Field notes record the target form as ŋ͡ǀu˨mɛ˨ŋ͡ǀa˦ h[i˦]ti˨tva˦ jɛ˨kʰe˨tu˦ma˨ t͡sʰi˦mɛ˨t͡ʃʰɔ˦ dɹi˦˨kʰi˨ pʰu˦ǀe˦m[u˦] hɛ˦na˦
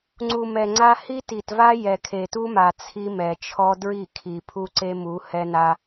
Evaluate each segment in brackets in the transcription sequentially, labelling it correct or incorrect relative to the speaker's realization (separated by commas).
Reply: correct, incorrect